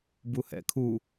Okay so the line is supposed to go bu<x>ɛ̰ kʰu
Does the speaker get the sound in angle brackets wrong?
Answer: yes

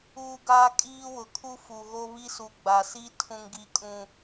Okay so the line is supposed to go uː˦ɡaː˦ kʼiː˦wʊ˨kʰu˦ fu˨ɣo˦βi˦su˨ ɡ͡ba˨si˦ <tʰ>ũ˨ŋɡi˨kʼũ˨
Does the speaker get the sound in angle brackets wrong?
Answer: no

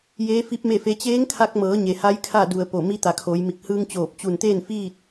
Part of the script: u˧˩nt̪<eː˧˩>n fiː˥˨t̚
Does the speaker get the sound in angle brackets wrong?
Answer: yes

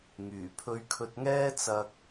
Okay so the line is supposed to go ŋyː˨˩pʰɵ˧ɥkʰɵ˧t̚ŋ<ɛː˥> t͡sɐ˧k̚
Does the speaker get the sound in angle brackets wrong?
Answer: no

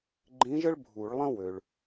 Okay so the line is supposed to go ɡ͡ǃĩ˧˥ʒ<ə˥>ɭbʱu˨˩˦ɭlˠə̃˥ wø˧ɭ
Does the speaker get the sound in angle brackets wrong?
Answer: no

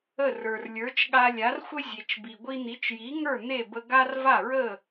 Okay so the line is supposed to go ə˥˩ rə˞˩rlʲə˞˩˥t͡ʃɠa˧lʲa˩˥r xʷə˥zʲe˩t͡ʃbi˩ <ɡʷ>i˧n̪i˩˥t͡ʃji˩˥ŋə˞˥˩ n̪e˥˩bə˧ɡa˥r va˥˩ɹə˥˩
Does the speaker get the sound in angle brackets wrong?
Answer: no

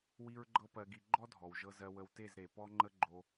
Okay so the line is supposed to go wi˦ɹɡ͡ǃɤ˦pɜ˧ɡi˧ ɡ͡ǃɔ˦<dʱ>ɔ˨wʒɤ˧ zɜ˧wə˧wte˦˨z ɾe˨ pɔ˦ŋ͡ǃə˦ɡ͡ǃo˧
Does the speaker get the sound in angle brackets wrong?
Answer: no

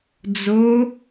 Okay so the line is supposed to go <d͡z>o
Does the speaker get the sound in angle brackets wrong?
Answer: no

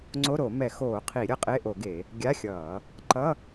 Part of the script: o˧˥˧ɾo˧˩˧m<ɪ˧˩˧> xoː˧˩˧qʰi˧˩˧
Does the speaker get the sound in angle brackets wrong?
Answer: yes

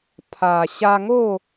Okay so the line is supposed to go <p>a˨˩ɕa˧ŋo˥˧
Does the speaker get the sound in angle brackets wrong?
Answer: yes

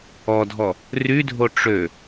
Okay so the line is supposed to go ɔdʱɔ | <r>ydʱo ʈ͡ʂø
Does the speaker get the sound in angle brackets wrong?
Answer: no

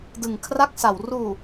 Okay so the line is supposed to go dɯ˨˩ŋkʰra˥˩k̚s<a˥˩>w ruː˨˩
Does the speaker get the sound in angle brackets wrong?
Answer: yes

